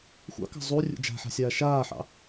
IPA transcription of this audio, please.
xʷɑ̰kɑ̤ zˤurʲṵ d͡ʒa̤ħa̤sʲaː ʃaːħɑ̰

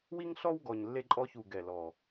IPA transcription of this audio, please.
wi˦ŋɬɔ˦w ɡɔ˨˩ɲlːe˦ǃʼɔ˦çu˨˩ ɡɛ˨˩lɔ˨˩

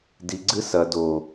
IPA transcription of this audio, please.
diɡ͡ǀɨ sɐ do

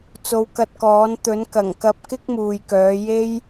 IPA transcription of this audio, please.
t͡so˨˧wkɐ˧t̚kɔː˨˥n t̪ɵ˨˥n kɐ˨˩ŋkɐ˧p̚kɪ˥k̚ muː˨jkœː˨˧ je˥j

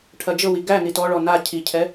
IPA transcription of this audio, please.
ʈʰɐd͡ʒɤwi ɡæ nitɔɭɔ na cʰicʰɛ

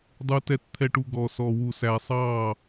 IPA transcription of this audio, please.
dˤu˥tɛ˥tt̪ʰɛ˥ ʈu˥ɡɔ˥ sɔ˥wu˥sæ˥ sˤɑ˥˧

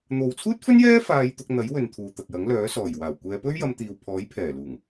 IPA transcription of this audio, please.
n̪o˨wt͡sʰuː˥t̚fɵ˥njɛː˥ faː˧jt̪ʊ˧k̚n̪ɐ˨˥jwɵ˨n t̪ʰuː˨t̪ɐ˨k̚jɐ˨˥ŋ lœː˨˥ sɔː˨˩jwaː˨˩w kʷɛː˨˧pɵ˥ɥ jɐ˧mt̪iː˨wpʰɔː˨˥jpʰɛː˨˩ luː˨˩ŋ

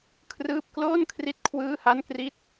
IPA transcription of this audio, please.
kʰrɯː˥˩p̚ kloː˥˩nkʰri˦˥t̚ kʰwɯː˥˩ha˥˩nkri˥˩t̚

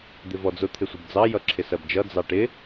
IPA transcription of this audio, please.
d̪ɪvɔd͡zʊ t̪ʰɪsʷɪbd͡zɑ jʌǁʰɪsɜbd͡ʒʌ d͡zɑʈɪ

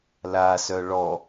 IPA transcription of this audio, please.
lasœ ɭɔ

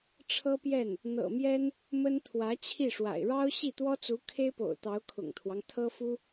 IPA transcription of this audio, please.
ʈ͡ʂʰɤ˥pjɛ˥˩n | n̪ɤ̰˨˩mjɛ˥n | mə˥nt̪ʰwä˧˥ t͡ɕʰi˥˩ʂwa̰˨˩ɪ̯ ɻɑ˥ʊ̯ ɕi˥˩t̪wɔ˥t͡su˧˥ kʰe˥ɪ̯po̰˨˩ʊ̯ t̪ɑ˧˥ʊ̯kʰʊ̰˨˩ŋt̪ʰwɑ˦ŋ t̪ʰɤ˥fu˥

